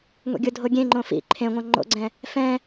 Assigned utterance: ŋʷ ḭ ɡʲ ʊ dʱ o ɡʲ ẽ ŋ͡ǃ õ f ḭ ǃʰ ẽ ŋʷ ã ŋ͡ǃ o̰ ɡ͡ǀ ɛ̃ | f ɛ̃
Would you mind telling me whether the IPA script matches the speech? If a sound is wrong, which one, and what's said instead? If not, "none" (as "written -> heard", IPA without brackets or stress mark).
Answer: none